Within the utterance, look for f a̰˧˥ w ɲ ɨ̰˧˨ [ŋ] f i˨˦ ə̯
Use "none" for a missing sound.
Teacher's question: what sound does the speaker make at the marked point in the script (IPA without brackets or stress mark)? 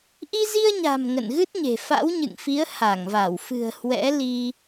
ŋ